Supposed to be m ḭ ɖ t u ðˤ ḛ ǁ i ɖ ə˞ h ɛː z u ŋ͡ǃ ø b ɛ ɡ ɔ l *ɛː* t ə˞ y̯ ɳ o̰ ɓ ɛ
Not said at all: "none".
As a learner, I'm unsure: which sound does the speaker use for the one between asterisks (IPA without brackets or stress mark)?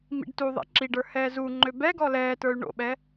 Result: ɛː